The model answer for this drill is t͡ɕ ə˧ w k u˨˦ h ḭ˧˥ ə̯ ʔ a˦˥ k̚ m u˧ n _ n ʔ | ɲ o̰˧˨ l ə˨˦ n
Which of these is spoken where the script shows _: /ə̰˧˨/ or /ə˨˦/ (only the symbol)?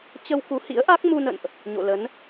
ə̰˧˨